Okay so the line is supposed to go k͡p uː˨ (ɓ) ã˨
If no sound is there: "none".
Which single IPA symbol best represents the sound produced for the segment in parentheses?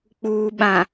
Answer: ɓ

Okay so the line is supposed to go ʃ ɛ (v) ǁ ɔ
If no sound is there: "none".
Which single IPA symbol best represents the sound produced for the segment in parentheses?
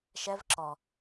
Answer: v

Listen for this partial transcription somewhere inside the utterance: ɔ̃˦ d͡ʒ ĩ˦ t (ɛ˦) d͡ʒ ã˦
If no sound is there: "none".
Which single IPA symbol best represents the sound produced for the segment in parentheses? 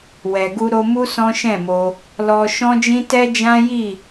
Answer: ɛ˦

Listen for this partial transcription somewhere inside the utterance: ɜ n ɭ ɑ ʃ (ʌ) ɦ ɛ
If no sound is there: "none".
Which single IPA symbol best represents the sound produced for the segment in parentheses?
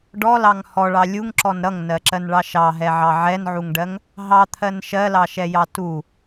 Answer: ɑ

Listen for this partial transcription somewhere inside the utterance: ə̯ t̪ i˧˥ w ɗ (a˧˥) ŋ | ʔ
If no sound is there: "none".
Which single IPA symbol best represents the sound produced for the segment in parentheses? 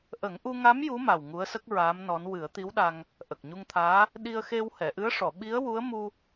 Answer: a˧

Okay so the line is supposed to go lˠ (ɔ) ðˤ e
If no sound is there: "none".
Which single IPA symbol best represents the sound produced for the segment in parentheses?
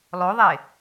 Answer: o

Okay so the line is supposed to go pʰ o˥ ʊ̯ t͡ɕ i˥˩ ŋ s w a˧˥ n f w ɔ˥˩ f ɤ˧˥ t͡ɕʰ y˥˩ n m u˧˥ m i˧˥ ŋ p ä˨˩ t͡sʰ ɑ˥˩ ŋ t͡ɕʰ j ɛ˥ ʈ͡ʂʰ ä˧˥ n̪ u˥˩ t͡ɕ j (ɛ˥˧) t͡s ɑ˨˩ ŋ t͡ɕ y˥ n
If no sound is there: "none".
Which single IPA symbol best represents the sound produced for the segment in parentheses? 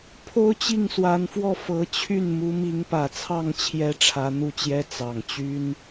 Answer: ɛ˥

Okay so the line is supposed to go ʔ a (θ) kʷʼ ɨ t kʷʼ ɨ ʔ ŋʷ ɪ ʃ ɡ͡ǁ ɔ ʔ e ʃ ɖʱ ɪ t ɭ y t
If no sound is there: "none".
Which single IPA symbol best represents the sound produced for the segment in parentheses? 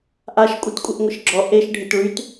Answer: ʃ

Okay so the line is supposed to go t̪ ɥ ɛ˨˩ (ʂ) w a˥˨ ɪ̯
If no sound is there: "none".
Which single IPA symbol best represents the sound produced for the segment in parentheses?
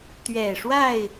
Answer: ʂ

